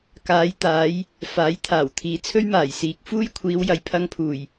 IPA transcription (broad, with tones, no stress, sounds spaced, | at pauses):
k aː˨˧ j t̪ aː˨˧ j | f aː˨˥ j t̪ʰ aː˨˩ w t̪ʰ iː˨ t͡sʰ ɵ˥ ɥ m aː˨˩ j s iː˨ k̚ f uː˥ j kʷʰ iː˨˧ w j ɐ˨ j pʰ ɐ˧ ŋ pʰ uː˨˩ j